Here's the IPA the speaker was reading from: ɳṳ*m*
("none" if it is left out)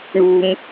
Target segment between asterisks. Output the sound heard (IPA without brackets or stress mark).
m